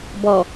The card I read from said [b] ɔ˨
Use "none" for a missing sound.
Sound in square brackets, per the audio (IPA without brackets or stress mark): b